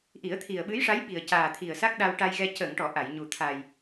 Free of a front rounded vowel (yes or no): yes